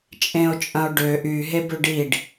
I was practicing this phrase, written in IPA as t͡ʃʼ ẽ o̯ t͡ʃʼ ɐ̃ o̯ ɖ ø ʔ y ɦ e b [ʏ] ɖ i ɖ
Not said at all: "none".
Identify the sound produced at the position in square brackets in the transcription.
ʏ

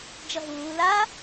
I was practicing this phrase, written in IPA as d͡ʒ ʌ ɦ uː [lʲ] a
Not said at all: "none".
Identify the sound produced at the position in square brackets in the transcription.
l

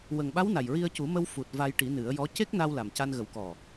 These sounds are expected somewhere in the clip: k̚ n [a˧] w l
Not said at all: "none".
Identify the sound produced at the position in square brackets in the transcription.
a˧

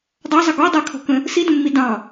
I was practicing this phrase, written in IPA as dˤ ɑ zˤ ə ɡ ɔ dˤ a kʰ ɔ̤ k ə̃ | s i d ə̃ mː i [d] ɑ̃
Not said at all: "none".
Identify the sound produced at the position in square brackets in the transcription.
d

